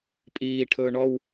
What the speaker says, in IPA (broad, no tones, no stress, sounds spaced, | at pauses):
pʼ iː ʈʰ ɵː ɳ ɔ w